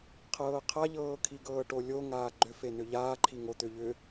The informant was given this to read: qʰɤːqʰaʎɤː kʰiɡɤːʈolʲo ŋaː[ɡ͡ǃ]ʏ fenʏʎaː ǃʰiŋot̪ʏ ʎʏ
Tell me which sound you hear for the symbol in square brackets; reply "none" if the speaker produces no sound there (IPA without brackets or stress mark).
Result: ɡ͡ǃ